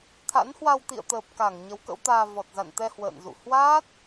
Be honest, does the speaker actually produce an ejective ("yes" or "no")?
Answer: no